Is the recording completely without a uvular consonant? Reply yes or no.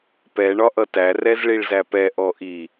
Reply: yes